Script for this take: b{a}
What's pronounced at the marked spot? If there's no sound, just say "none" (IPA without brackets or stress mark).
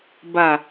a